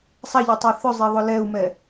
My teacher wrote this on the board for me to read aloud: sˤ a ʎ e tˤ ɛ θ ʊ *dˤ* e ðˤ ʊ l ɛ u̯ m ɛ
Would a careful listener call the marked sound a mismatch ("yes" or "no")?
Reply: yes